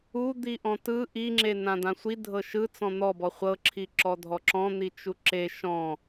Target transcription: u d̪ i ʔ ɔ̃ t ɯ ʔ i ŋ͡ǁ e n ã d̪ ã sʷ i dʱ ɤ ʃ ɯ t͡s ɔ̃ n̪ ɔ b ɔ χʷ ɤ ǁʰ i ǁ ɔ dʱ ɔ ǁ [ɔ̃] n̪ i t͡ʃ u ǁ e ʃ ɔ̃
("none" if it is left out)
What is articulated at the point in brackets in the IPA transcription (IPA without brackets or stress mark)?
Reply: ɔ̃